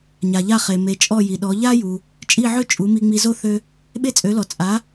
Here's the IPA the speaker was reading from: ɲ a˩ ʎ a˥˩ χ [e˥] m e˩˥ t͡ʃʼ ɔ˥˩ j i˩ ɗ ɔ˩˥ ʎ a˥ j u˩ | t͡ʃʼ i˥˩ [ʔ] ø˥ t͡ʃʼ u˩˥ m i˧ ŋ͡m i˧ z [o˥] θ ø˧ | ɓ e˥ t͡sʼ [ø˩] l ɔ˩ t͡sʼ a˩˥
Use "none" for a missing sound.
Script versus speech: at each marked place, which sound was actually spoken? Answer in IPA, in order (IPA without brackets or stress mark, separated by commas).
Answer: e˩, ʕ, o˥, ø˩˥